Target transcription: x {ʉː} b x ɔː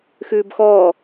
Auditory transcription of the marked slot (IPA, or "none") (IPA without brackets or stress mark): ʉː